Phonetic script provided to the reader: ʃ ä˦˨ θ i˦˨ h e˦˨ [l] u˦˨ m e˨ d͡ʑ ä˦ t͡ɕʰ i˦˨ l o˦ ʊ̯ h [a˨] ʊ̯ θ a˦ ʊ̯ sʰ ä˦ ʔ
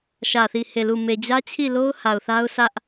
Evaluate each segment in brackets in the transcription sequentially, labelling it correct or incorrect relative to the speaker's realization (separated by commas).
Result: correct, correct